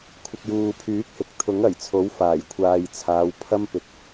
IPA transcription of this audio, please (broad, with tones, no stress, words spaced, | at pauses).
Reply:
kʷʰɪ˨k̚juː˨pʰyː˨˥k̚hɪ˨k̚ t̪ʰʊ˨˥ŋɐ˨˩jt͡sʰo˨˥w faː˨˩jkʷʰaː˨j t͡sʰaː˨˧wpʰɐ˥mpɪ˧k̚